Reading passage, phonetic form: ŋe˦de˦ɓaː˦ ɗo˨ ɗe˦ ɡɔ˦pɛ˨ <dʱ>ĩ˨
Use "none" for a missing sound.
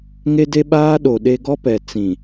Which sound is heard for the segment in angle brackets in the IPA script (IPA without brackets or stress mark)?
t͡s